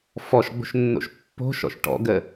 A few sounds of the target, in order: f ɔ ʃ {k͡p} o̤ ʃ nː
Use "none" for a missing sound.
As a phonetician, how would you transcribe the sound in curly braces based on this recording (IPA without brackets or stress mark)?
ɡ͡b